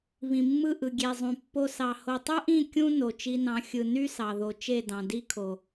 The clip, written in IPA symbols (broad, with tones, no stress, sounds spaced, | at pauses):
β ĩ˨ mː ɯ˦˨ ʔ ɯ˨ ɡʲ e˨ zˤ ũ˨ pː o˧ s ɑ˨ h o˨ tˤ ɯ˦ ʔ ĩ˦˨ kʲ ũ˦ n o˨ t͡ʃ i˧ n ɑ̃˨˦ xʲ ɯ˨ n y˦ s ɑ˨ ð o˨ t͡ʃ e˦˨ d ɑ̃˨ d i˦ kʰ o˨